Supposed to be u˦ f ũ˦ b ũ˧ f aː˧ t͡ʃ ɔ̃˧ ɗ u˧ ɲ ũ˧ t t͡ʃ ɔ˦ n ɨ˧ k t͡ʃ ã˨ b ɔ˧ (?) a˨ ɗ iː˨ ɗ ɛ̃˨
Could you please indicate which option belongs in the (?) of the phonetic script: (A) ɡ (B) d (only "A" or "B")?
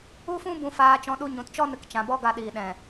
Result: A